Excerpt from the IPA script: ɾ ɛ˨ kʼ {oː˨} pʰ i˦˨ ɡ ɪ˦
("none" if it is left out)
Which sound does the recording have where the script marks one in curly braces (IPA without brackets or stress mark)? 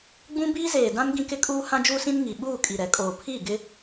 oː˨